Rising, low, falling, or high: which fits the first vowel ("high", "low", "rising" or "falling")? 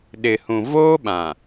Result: low